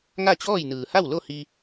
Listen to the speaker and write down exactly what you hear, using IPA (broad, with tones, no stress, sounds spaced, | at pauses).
ŋ a˥˨ t͡ɕ ɔː˥˨ j n ɯː˩ h a˥˨ w l o˥˨ h i˧